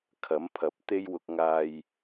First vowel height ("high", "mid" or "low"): low